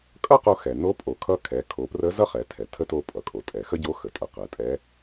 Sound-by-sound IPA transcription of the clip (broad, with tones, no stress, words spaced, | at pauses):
kʼʌ˥qo˧ xɛ˩ no˧˥pʼo˩˧kʰʌ˧˥ kʰɛ˩˧kʰo˩˧prə˧˥ zʌ˥χɛ˩˧tʰɛ˩ tʰə˧˥to˧ pʼʌ˩kʼo˩tʼɛ˩ xə˥ɟo˧˥xə˩tʼə˩˧ qɛ˩˧tʼɛ˧˥